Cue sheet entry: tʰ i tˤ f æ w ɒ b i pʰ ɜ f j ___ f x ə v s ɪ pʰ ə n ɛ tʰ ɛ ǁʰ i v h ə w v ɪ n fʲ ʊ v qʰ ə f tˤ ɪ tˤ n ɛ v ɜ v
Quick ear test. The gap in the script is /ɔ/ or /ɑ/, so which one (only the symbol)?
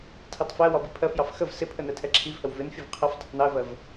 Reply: ɑ